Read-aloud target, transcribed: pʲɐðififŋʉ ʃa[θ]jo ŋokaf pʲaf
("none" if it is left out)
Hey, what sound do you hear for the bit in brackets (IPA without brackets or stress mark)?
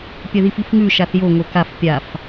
θ